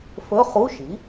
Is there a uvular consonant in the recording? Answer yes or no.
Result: yes